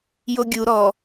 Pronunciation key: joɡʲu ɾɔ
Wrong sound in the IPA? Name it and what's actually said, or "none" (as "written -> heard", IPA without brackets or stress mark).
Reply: none